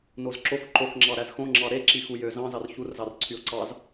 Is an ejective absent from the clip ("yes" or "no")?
yes